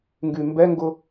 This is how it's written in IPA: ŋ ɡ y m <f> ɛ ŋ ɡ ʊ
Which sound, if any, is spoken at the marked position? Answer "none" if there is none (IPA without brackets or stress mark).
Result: b